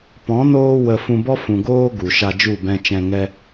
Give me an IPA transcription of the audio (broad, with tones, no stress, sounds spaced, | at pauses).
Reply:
p ɔ̃˨˦ n oː˧ w ə˧ f ũ˧ b ɔ˦ f ũ˨ ɡ oː˦ ɡ u˨ ʃ a˧ d͡ʒ u˦˨ b ɛ̃˧ t͡ʃ ɛ̃˧ ŋ ɛ˦